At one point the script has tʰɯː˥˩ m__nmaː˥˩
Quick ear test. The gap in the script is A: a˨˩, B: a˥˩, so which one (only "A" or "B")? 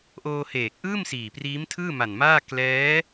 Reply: A